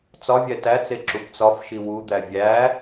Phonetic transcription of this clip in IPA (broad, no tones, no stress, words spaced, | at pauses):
t͡sɒvʲæ tæt͡se ǁupt͡sɒfʃi wud̪æ vʲæ